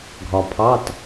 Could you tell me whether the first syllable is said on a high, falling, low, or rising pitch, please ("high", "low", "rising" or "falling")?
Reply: low